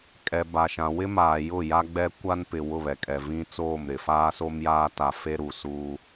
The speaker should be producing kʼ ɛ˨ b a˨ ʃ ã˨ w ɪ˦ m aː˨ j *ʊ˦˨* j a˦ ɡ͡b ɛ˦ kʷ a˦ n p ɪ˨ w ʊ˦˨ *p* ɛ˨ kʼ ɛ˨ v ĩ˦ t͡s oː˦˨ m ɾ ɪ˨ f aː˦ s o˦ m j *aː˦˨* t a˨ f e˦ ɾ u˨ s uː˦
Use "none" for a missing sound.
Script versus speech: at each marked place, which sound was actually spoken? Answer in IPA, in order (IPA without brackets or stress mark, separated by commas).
ʊ˦˨, β, aː˦